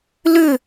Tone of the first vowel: falling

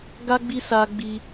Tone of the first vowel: high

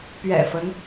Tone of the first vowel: low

